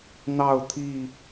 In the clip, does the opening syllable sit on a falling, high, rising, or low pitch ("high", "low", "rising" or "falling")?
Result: falling